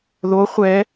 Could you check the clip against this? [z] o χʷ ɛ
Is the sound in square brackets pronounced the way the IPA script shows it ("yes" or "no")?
no